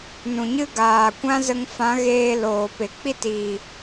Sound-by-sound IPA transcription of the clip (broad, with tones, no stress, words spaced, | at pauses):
nũ˨ɲɨ˦ ɡaː˨ kʷã˦zə˧ŋ fã˨˦ɣeː˧ loː˨pe˨ k͡pi˦˨tiː˨